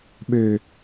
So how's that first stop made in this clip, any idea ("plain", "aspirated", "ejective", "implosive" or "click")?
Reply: implosive